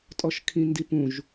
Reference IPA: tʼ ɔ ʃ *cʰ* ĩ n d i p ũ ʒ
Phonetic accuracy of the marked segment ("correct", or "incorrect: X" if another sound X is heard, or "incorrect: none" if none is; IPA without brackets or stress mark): incorrect: kʰ